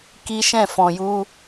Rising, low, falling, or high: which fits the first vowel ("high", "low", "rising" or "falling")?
high